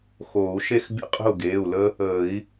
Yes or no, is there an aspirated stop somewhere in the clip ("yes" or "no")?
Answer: no